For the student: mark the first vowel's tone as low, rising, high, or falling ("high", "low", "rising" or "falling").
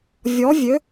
rising